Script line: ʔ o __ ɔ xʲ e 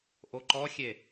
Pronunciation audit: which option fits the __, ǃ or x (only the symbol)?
ǃ